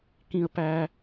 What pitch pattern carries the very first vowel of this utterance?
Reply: high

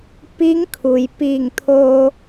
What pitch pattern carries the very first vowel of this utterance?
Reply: rising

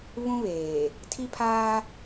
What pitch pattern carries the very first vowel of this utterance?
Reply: high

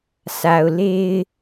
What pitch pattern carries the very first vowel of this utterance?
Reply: low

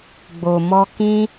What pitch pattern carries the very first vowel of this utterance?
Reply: low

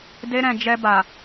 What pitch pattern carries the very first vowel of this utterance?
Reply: high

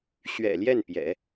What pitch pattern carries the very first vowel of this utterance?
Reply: low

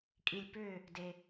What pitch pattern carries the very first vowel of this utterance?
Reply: low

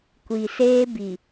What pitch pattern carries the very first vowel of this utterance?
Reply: low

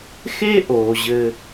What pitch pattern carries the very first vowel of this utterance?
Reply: high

